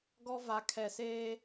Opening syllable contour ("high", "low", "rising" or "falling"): high